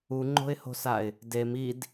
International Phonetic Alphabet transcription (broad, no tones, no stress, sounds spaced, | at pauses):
u ŋ͡ǃ o̤ ɪ̯ h o̤ s a ɪ̯ | d e m i d